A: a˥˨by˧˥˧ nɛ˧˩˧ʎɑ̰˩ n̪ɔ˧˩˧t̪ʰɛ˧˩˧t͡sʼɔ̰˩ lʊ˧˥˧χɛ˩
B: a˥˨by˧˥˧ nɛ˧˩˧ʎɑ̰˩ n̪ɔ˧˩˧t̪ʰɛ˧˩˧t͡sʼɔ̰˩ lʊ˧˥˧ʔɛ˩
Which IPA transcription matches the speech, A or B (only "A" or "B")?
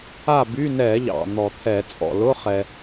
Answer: A